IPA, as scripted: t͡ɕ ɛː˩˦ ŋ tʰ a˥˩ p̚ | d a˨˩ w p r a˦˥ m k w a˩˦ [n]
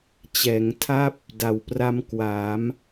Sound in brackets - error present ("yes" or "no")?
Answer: yes